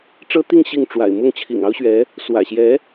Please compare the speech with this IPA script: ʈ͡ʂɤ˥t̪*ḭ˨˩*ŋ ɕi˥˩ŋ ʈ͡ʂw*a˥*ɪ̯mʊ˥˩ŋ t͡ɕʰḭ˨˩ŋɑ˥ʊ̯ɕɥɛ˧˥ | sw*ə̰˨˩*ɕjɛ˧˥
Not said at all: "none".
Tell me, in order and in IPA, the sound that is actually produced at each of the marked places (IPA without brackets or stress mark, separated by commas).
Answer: i˥˧, a̰˨˩, ä̰˨˩